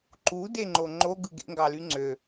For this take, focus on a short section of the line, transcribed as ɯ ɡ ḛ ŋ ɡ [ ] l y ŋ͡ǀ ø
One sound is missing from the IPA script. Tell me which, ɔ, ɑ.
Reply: ɑ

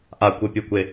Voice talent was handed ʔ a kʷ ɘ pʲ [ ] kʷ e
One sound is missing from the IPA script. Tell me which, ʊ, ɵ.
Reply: ʊ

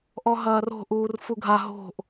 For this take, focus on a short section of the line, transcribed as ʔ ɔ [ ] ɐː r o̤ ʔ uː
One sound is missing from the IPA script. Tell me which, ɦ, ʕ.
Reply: ɦ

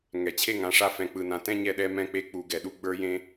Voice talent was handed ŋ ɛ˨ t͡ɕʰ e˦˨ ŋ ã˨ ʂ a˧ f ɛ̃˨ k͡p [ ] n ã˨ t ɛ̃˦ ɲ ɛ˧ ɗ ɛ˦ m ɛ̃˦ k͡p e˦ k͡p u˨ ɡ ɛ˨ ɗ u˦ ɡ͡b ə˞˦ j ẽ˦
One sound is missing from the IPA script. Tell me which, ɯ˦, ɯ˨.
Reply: ɯ˨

